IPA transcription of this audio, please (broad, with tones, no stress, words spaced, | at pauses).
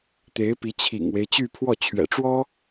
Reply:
t̪e˧˥ɪ̯pi˧˥t͡ɕʰḭ˨˩ŋwe˦ɪ̯ t͡ɕy˥˧pʰwɔ˥˩t͡ɕʰɥɛ̰˨˩ʈ͡ʂwɔ˥